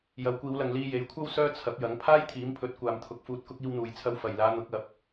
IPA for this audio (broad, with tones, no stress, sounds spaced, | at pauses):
j ɐ˨˧ w kʷ iː˨˧ w l ɐ˨ ŋ l iː˧ j e˨˥ j kʷʰ ɐ˥ w s œː˧ t͡sʰ ɐ˨˥ p̚ j ɐ˨˥ ŋ pʰ aː˥ j t̪ʰ iː˨˥ m pʰ ɵ˨˥ t̚ kʷ aː˨ m t̪ʰ ʊ˨˥ k̚ f uː˨ t̚ k ʊ˧ k̚ iː˧ w n̪ uː˨ j t͡sʰ ɐ˧ w f ɐ˨˩ j l aː˨˧ n̪ ʊ˨˥ k̚ ɐ˨˥ p̚